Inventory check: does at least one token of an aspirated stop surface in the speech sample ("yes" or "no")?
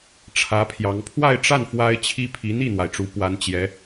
yes